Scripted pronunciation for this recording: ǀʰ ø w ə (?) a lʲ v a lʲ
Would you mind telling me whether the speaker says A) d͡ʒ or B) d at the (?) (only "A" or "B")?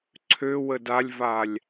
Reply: B